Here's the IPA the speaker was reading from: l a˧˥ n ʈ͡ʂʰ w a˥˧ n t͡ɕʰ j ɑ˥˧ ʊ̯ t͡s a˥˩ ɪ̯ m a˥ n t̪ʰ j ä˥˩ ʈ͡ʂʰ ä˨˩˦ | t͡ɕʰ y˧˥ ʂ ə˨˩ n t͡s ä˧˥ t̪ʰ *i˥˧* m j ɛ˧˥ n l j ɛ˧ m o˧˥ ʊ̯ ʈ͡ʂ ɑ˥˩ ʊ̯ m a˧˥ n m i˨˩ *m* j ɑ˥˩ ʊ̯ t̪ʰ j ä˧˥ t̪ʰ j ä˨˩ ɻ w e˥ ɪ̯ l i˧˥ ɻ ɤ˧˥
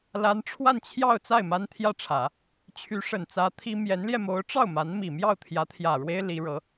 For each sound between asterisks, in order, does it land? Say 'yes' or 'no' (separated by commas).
no, yes